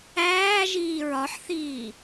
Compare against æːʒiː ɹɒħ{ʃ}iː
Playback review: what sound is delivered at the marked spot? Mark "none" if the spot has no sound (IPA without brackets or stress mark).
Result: θ